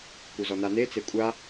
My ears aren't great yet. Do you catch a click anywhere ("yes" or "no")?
no